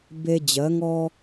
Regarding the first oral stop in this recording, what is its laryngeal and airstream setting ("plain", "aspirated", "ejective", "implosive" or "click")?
plain